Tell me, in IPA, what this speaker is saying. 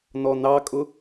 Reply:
nɔnɑkʼʊ

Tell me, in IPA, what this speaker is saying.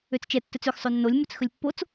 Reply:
øt͡st͡ʃɛ tːɵt͡søx sˤønːolʲ mɵt͡sxɵlʲpːot͡s

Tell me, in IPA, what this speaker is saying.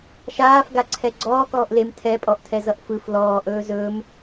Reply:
ʃaːfɡaǀʰɛ ɡ͡ǀɔːkɔːʔ lem tʰɛpʼɔʔtʰɛzʌʔ fɯf lɔːʔɵː zɵːm

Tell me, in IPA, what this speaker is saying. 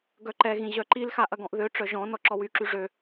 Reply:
ɡœǃɛɣĩ ʑœǃilxa ʔɐɡɔ̃ʔðøʈ͡ʂœ ʒɔ̃nɔ ǁɔwyǁy ʐø

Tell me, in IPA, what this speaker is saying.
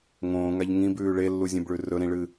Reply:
ŋõːŋaʎ ŋĩbʉː ɭelːuzʲẽbɭʉ rɵɾĩɭɨ

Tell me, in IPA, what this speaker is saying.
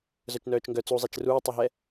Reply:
zœt͡ʃnœːt͡ʃŋɡœ t͡suzˤɛt͡ʃ ruːtˤoɦɛ

